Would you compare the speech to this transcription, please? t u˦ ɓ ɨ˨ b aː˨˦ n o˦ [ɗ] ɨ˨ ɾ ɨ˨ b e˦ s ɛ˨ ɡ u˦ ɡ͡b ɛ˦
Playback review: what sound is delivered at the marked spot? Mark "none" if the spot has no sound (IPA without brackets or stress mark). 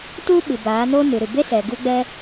n